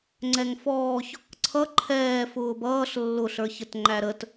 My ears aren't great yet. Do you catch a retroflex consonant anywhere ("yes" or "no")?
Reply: no